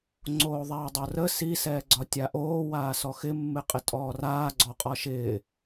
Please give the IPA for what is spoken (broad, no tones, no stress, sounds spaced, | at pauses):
ŋ͡ǀ oː ðˤ ɛː dˤ o r ə s i s ɛː ɡ͡ǀ ɒ tʲ a ʔ oː w aː s ɔ x ɪ mː ɪ qʼ ɪ tʼ ɔː r aː ɡ͡ǀ ɔ qʼ ɒ ʃ ɪː